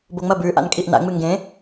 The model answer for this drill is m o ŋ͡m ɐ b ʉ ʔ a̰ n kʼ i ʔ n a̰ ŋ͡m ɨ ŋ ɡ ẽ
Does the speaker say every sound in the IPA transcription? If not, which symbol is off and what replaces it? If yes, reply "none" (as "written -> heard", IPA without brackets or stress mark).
m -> b